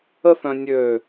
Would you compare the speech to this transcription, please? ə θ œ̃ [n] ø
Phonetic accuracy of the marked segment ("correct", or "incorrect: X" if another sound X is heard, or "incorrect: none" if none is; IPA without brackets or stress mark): incorrect: nʲ